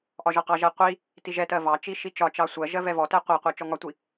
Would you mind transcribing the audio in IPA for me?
ʔ ɒ ʒ ɒ q ɑ ʒ ɛ qʷ i | t i ʒ ɛ t ɜ v ɑ t͡ʃ i ʃ i t͡ʃ ɒ t͡ʃ ɑ sʷ ɜ ʒ ɜ v ɛ v ɔ t ɛ qʷ ɑ qʷ ɜ t͡ʃ ɔ ŋ ɒ tʷ i

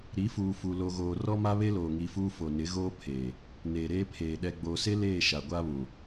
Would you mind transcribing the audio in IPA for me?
ɾ i˨˦ f uː˨ f u˨ l o˨ ɣ oː˨ r ɔ˦ m a˦ β e˦ l oː˨ ŋ i˨ f uː˦ f o˨ n ɪ˨˦ ɣ oː˦ pʰ eː˨ | n eː˨ ɾ eː˦ pʰ eː˨ ɗ ɛ˨ ɡ͡b oː˨ s e˦ l eː˦˨ ʃ a˨ ɡʷ a˦ β ũ˨

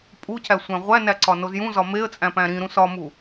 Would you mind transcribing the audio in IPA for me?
pʼ u c æ sʷ æ̃ ʁʷ æ n æ ǀ ɒ n o z j ũ z ɒ m e ə̯ t͡sʼ æ̃ p æ̃ ɾ ĩ ɾ ũ s ɒ m u

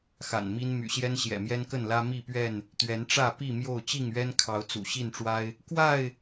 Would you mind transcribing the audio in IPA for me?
x a̰˨˩ n m i˦ n m y̰˨˩ ɕ j ɛ˦ n ɕ j ɛ̰˨˩ m j ɛ˦ n k ə˥˨ n l ä˦ m i˥˨ p ɥ ɛ˥˨ n | t̪ ɥ ɛ˨˦ n ʈ͡ʂ ä˥˨ p i˥˨ m j o˥˨ ʊ̯ t͡ɕ i˥˨ ŋ ɥ ɛ˦ n kʰ ɑ˨˦ ʊ̯ t͡s ṵ˨˩ ɕ i˥˨ n ʈ͡ʂ w a˦ ɪ̯ | k w a˥˨ ɪ̯

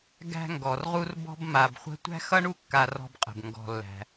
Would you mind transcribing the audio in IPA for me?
ɡ æ̤˧ ŋ ɡ ɔ˩ r ʁ u˧ r b ɔ̤˧ b m a˩ b χʷ ə̤˧ tʷ æ̤˥ x ʌ˥ ɳ u˥ kː a˧ r ɔ̤˧ b qʼ ə̤˩ b ŋ ɡ ɔ̤˩ lː æ̤˩

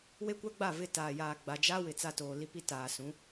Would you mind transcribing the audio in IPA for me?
w e˦ kʷ a˦ ɡ͡b a˦˨ v ɪ˦˨ t aː˨ j aː˨ ɡ͡b a˨ d͡ʒ a˦ w ɪ˨ t͡s a˦ t oː˨ l i˦ p i˦ t aː˨ s ũ˨˦

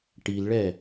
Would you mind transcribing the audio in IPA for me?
ʈ i l ɭ ɛ

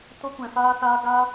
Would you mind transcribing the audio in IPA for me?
t o˦ kʷ ɛ̃˧ f aː˦ s aː˦ ɡ aː˦

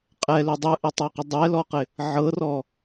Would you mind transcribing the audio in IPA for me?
qʼ ɛ l ɵ dˤ ɯ ʔ ɪ tˤ ɤ q ə dˤ ɛ l ɔ q ɪ | ʕ ɤ r ɔ

